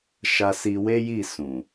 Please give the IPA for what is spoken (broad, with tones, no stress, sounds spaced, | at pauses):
ʃ a˧ s i˧ w e˦ j i˦˨ s ũ˨